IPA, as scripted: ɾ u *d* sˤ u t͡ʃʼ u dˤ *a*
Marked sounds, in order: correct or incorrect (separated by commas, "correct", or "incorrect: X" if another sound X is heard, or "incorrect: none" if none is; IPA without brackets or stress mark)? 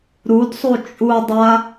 correct, correct